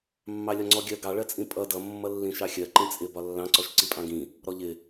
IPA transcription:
mːɑlʲɒŋ͡ǀɔɡʲɜ ɡɑɭɜt͡sʼĩ pʼʌ dʌ mːʌlːĩʃɑxʲɜ ǃĩt͡sʼɪ bɒlːɑ̃ǀɔʃ ǀipʼɑ̃ɡĩ | ɾɔʎɪ

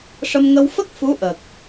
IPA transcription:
ʂə˧m ŋə˧w fə˦˥k̚ fu˧˥ʔəː˨˩k̚

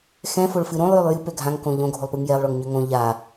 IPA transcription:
xɛ̃foɭfɨ ɾõlˠjølˠ jɨpø ɡʱãŋkõ ʎõɡʱolˠpɯŋ jɛlˠɭoŋɲø ŋõ ʎa

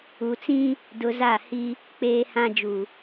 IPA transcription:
u˨t͡sĩ˦ | dʊ˨ za˦˨ hi˦ | k͡peː˦hã˦ d͡ʒu˨

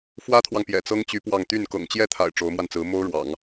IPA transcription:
fwä˥t̪ʰwɑ˨ŋ pjɛ̰˨˩t͡sɤ˥ŋt͡ɕy˧˥ pwɑ˥˧ŋ t̪y˥˩n kɤ̰˨˩ŋt͡ɕjɛ˥˩t̪ʰa̰˨˩ɪ̯ ʈ͡ʂo˧˥ʊ̯mwa˧nt͡sɹ̩˧˥ mo˥ʊ̯ ɻwɑ̰˨˩˦ŋ

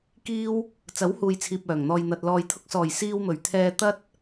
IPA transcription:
kiː˥w | t͡sɐ˨˥whuː˨jt͡sʰiː˨p̚ œː˨˩ŋn̪ɔː˨jn̪ɐ˨t̚ lɔː˨jt̪ʰʊ˧k̚sɔː˨˩j siː˧wmɵ˨˩ɥt̪ʰɛː˧ t̪ɐ˥t̚

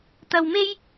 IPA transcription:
t̪ɐ˧wme˥j

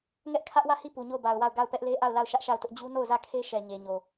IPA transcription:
ŋɛ˦ʔkʰä˦ʔwä˦˨hi˦˨ pu˨ɲo˦˨ʊ̯ba˨ʊ̯wa˦˨ʊ̯ ɡa˦˨ʊ̯pɛ˦ʔle˦ ʔa˦˨ʊ̯la˦˨ʊ̯ ʃä˦ʔʃa˦˨ʊ̯tʊ˦ʔ d͡ʑu˦no˦˨ʊ̯zä˦˨kʰe˦ ʃɛ˨ɲe˨ɲo˨

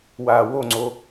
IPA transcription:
waːwoŋ͡ǀo

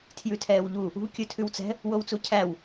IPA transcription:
tʰjʉtʰɛːwʎu | ṳ kʲɵtʰʉwt͡sɛ̤ | wowt͡sucʰæw

